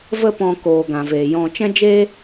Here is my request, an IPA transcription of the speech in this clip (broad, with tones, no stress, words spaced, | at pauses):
və˦pɔ̃˧ koː˨ɡã˨veː˨ jɔ̃˧ t͡ʃɛ̃˦d͡ʒeː˦